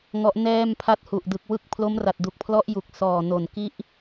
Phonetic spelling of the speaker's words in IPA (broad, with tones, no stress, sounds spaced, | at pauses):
ŋ ɔ˦˥ ʔ n ɛː˥˩ m pʰ a˥˩ t̚ h u˨˩ ʔ d ɯ˨˩ k̚ w ɯ˦˥ k̚ pʰ l o˦˥ m r a˨˩ t̚ d u˨˩ k̚ pʰ l ɔ˦˥ ʔ j u˨˩ k̚ s ɔː˨˩ n o˨˩ n k i˦˥ ʔ